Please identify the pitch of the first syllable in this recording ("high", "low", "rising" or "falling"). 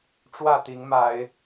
falling